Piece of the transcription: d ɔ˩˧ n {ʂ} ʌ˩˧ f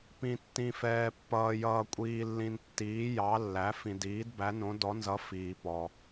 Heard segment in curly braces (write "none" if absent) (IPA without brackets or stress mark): z